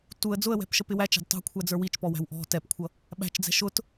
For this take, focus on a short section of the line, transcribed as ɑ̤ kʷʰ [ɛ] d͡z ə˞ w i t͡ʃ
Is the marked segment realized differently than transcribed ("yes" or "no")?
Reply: yes